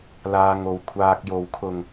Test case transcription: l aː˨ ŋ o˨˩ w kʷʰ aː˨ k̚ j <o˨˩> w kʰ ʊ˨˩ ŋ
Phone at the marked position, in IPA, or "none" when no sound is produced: o˨˩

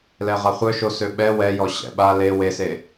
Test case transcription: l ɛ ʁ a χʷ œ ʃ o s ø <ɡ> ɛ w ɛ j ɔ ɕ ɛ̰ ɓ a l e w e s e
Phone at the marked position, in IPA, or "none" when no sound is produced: ɓ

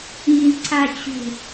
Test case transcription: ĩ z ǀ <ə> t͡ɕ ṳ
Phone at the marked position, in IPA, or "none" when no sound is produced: a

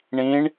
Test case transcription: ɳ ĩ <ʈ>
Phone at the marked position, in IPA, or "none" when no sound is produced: ɳ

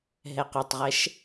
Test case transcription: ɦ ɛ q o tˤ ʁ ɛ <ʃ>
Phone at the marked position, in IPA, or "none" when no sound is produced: ʃ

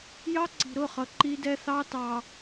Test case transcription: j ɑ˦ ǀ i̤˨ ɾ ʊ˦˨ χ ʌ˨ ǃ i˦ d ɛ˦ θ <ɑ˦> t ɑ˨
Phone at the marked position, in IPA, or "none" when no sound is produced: ɑ˦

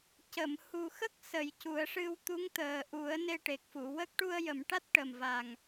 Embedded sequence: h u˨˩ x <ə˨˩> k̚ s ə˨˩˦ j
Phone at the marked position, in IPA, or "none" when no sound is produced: ə˦˥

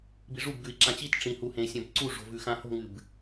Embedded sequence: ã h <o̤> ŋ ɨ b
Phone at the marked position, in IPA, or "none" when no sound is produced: o̤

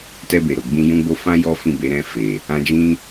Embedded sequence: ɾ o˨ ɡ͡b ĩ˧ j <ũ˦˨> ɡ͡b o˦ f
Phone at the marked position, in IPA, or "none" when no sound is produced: ũ˦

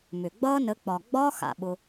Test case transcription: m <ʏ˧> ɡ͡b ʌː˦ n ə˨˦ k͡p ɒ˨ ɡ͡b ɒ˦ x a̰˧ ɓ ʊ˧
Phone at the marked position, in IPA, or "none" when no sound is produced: ʏ˨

